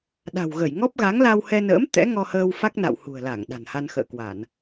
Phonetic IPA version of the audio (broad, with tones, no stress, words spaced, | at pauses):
ɗa̤˨˩wɣə˧˩jŋɔ˦˥p̚ ɣa˨˦ŋla˧whɛ˧nə̰ː˧˥m t̪ɛ̰˧˥ŋɔ˧həː˧w fa˦˥k̚na̰˧˨whṳ˨˩ə̯ la˧˩ŋ ɗa̤˨˩nha˧n xə̰ː˧˨kwa˧˩˨n